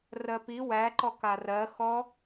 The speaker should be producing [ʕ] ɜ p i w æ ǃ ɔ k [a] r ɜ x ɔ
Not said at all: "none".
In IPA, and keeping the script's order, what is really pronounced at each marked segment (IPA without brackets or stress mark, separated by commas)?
r, a